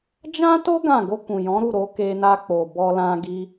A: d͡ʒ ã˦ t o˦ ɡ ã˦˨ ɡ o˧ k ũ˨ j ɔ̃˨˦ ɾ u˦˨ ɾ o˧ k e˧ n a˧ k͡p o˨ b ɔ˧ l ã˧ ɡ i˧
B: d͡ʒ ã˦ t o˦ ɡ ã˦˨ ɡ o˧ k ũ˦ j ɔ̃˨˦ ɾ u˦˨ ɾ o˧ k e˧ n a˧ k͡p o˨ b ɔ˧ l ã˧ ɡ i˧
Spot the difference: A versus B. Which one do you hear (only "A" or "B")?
A